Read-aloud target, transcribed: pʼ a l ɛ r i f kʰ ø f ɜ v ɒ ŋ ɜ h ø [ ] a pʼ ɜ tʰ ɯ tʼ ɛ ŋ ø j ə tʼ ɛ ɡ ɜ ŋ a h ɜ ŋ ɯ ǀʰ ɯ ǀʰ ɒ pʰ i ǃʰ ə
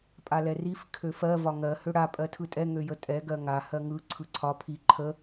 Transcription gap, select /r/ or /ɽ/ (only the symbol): ɽ